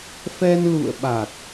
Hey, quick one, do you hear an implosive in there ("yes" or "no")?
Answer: yes